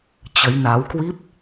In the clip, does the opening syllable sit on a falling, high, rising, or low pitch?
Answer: rising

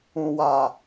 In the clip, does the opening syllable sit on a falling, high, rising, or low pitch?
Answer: low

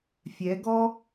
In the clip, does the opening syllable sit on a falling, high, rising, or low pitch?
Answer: rising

